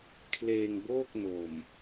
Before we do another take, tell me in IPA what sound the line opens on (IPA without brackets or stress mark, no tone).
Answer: kʰ